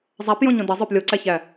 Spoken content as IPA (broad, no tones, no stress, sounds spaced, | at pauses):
zˤ æ p j õ ɲ õ d ʌ zˤ œ p lʲ o ǀ æ ç æ